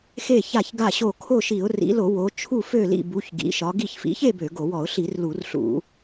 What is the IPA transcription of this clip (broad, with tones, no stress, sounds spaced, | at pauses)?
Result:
x e˥˨ ç a˥˨ ç ɡ a˥˨ ɕ o˥˨ kʰ o˥˨ ʃ i˧˩˧ ʊ̯ r ḭ˨˦ l o˧˩˧ w o˨˦ t͡ʃʰ u˥˨ f ø˥˨ l ḭ˥˨ b u˨˦ ç ɡ ḭ˨˦ ʃ ɒ˨˦ ɡ i˥˨ ç f ḭ˨˦ ç e˥˨ b ø˧˩˧ ɡ o˧˩˧ w ɔ˧˩˧ ʊ̯ ɬ i˧˩˧ r l u˧˩˧ r ɬ ṵ˧˩˧